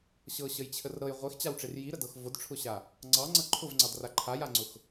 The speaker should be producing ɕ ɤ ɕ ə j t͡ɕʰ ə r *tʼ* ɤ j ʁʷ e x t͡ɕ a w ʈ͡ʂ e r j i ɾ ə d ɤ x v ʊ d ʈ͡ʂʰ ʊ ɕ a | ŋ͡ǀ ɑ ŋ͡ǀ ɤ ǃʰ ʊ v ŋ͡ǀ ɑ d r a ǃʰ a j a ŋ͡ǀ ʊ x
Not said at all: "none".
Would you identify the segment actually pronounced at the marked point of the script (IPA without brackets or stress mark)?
ɾ